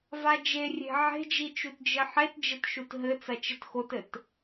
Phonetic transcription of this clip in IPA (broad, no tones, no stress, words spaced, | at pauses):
vad͡ʒe rʲe̤ ʕe̤d͡ʒi t͡ʃutd͡ʒɘħet d͡ʒɘtʃutɦɘ t͡sɐt͡ʃɘtxotɘt